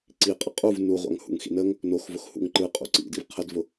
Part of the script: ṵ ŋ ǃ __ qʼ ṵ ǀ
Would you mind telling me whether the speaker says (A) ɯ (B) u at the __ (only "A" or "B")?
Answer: A